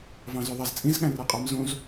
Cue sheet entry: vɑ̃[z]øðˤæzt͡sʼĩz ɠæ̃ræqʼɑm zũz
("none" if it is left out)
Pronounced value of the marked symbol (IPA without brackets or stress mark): z